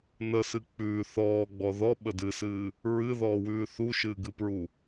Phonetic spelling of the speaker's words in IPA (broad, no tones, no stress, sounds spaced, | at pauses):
n ə s ɨ k͡p ʉː θ ɔː ɡ͡b ɔ ð ɔ ɓ ə d ɨ s ɨː | ɹ ɨ ð ɔː w ʉː θ u ʃ ɨː ɡ ɨ p ɹ u